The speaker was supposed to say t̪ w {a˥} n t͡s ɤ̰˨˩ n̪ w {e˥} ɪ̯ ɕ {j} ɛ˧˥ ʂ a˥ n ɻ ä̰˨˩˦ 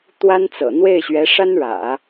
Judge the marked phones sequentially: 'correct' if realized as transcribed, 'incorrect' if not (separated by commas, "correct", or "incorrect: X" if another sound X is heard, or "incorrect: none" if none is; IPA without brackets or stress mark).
correct, incorrect: e˥˩, incorrect: ɥ